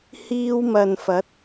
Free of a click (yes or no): yes